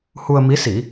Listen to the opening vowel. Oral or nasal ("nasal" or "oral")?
oral